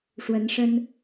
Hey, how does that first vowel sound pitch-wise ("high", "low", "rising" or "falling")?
rising